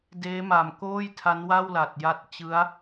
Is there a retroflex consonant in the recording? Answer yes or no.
no